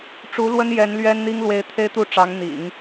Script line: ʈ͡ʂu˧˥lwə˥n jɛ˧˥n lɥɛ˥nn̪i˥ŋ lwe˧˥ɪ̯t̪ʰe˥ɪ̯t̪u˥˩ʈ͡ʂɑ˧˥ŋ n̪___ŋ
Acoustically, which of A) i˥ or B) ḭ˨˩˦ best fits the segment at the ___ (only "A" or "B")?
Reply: B